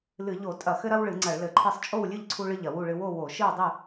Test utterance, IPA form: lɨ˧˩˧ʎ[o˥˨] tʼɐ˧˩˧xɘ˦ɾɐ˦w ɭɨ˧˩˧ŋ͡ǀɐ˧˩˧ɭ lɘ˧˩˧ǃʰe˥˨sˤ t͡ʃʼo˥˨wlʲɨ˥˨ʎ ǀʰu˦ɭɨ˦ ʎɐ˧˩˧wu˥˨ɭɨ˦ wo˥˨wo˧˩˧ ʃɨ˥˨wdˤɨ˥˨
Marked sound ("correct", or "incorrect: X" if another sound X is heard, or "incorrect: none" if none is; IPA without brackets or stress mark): incorrect: o˧˩˧